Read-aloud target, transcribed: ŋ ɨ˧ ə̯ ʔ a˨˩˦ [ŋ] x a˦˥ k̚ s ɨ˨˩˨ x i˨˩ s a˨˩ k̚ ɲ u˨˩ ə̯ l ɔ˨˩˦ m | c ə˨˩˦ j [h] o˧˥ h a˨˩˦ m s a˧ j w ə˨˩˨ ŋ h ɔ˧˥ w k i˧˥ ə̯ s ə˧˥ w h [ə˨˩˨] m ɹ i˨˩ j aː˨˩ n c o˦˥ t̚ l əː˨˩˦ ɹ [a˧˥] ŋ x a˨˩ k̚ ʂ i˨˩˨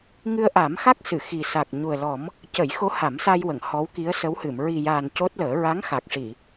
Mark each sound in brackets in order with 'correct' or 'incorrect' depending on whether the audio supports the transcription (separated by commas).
incorrect, incorrect, incorrect, correct